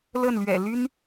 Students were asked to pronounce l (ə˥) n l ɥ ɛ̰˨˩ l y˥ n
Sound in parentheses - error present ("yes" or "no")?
yes